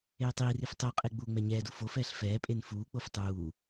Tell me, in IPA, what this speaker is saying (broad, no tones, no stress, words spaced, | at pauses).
eːtˤiːrif tˤoqʼe ɡ͡buːŋ͡mɛɲɛːdu fofɛːɬ fɛːpʼen fuːk͡pof tˤuː